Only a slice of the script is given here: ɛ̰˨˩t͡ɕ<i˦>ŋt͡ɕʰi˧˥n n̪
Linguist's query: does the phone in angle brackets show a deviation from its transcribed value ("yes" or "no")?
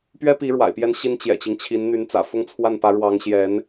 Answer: no